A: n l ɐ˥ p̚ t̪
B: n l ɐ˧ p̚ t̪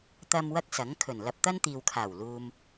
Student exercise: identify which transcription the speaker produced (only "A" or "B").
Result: B